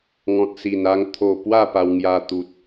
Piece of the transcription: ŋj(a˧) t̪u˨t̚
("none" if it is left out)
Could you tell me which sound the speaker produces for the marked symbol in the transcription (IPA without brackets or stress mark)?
a˧